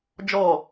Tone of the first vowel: low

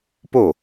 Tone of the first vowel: falling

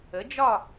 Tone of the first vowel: rising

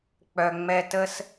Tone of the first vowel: low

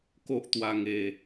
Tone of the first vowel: high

